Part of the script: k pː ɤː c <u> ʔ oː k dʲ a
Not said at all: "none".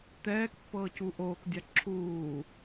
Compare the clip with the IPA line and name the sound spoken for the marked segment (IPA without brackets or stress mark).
u